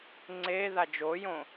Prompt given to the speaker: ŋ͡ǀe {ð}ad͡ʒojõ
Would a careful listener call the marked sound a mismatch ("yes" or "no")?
no